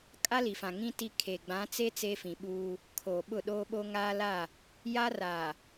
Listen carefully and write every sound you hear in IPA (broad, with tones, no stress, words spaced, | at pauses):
kʼa˦li˨fã˨ ŋĩ˦ ti˦kʰe˨ ɡ͡bã˨˦t͡se˦ t͡seː˦fĩ˨ɓuː˦ | kʰoː˨ɓʊ˦˨ ɗoː˦ɓo˦ ŋaː˦la˦˨ | ja˦ra˨